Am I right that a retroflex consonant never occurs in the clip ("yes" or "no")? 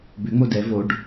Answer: no